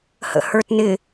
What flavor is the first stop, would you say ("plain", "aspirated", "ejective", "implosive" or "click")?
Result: plain